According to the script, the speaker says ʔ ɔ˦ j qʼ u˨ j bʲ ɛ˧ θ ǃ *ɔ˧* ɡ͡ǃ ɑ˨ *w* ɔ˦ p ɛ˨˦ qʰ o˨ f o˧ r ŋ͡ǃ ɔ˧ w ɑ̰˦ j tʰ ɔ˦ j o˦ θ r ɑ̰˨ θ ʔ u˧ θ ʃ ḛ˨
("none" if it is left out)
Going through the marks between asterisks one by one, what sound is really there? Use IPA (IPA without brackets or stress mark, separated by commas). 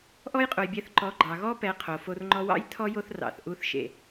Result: ɔ˨˦, ɣ